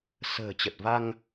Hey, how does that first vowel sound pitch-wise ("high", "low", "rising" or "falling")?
low